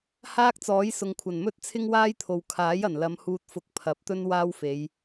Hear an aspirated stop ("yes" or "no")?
yes